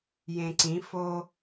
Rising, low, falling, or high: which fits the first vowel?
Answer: low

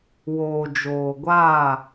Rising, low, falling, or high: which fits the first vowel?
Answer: low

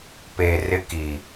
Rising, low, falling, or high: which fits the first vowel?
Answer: low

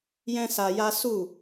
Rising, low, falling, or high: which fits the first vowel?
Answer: high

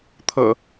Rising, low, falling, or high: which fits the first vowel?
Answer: low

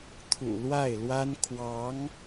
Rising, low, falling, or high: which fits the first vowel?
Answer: low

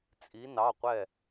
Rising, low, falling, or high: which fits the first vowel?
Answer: rising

